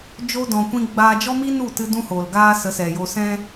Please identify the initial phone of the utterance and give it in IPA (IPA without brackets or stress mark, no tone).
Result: d͡ʒ